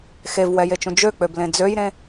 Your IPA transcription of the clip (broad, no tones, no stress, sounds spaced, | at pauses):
x e v w ɛ j e t͡ʃ ũ d͡ʒ ø k͡p ø b l ẽ d͡z ø j ɾ ẽ